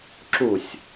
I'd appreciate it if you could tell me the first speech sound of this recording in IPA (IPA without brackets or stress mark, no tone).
ǁ